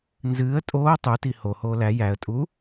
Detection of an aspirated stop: absent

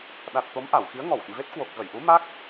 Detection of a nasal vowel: absent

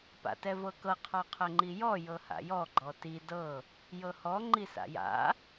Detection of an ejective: absent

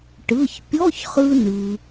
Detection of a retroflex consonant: present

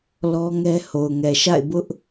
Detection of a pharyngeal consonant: absent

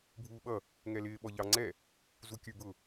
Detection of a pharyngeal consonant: absent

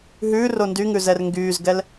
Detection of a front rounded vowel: present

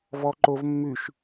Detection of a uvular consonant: absent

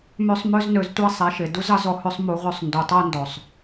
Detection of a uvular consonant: present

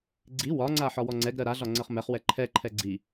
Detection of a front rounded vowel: absent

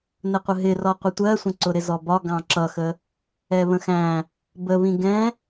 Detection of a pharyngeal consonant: absent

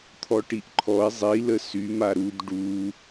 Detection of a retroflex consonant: present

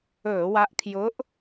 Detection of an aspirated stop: present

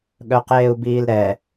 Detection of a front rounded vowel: present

